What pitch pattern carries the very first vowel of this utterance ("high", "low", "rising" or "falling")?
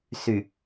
low